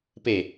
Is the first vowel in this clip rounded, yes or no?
no